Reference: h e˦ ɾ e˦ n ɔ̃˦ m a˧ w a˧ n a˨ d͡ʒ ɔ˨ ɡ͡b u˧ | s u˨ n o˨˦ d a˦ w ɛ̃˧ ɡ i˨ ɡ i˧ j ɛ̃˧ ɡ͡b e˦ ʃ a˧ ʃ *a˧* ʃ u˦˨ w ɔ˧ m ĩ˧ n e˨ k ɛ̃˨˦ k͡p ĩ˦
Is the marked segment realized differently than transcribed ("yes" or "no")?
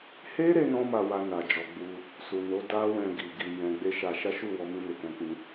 yes